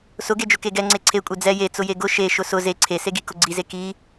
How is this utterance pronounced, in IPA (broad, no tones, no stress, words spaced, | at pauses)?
sʊɡed͡ʒʊ keɡɛ ŋ͡ǀeǀʰekʷʼe d͡zɛ jet͡sʊje ɡʊ ʃe ʃʊsʊ ze ǀʰeseɡi kʊɡ͡ǀize ki